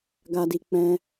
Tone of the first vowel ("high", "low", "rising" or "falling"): low